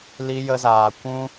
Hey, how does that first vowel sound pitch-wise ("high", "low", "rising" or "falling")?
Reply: high